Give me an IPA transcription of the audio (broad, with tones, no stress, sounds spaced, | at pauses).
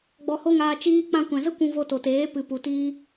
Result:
ɡ͡b ɔ˧ h o˦ ŋ aː˧ t͡ʃ iː˧ k͡p ã˧ kʷ ɛ̃˨ z ə˦ kʷ ũ˧ v o˧ t o˨ t eː˨˦ p ɨ˨ p u˨ t iː˧